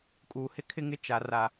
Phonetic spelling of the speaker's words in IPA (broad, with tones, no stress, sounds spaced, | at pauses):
kʼ uː˨ h ɪ˦ kʰ ɪ˦ ŋ ɪ˦ t͡ʃ a˨ r a˨